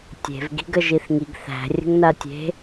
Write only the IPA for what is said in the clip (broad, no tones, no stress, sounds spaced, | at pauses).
tʲ e̤ v ɡ i̤ ɡ ə ʒ i θ ŋ i ɡ θ æ̤ rʲ ə̤ ŋ n a tʲ e̤